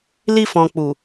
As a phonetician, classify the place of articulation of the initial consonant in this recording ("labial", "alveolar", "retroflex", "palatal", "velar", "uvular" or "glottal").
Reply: alveolar